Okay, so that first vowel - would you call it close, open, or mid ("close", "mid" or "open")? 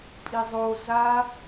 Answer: close